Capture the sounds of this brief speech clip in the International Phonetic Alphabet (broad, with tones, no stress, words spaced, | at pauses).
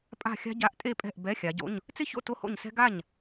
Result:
pʼa̤˥˩xʲa̤˥ ɟa˧˥˧ʔtʼe˥˩pʼɛ̤˥˩ʔ bɛ˧˥˧xʲa˨˦ɟo̰˧˥˧ɲ | t͡sɪ˥˧ço̰˥˩ to˥˧ho̰˥˩ɲsɛ̤˥ ɡa˥˩ɲ